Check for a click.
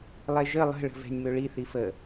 absent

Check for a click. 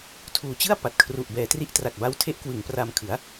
absent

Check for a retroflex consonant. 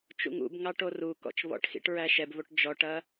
present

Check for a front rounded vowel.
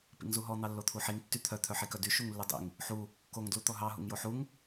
present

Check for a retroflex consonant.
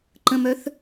absent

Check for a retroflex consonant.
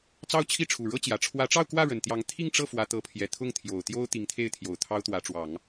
present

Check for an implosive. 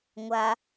absent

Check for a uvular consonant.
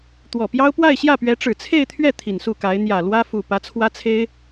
absent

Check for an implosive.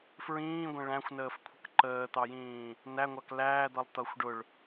absent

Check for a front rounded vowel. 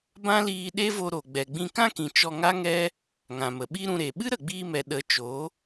absent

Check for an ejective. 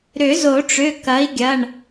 absent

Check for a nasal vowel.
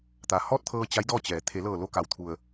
absent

